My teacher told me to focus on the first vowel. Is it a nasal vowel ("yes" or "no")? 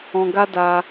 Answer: yes